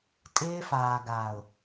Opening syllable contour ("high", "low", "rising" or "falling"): high